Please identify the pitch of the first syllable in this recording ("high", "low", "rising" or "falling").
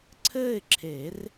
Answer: falling